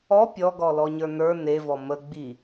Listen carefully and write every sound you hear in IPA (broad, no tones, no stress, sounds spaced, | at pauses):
ɔ pʲ ɔ ɡ ɔ l ɔ ɲ ə˞ n ə˞ n e v ɔ m ə ɡ͡b i